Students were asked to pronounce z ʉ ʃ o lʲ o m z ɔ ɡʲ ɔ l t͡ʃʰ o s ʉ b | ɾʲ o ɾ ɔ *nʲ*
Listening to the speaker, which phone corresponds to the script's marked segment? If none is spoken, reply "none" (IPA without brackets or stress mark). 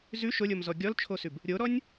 nʲ